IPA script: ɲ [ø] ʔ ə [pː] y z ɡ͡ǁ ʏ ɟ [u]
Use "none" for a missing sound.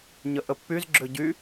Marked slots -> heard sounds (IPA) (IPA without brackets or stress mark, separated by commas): ə, pː, y